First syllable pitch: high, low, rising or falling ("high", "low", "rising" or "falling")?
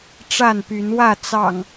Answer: falling